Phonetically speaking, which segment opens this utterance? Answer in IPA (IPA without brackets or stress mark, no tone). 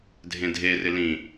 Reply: dʱ